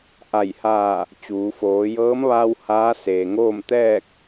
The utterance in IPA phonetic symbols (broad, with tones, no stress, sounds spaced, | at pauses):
ʔ a˧˩ j h aː˧˩ | t͡ɕ uː˩˧ f oː˩˧ j ɤː˧˥ m ʋ aː˧ w h aː˧˥ s eː˩ ŋ oː˥˨ m t̪ ɛː˥˨ k̚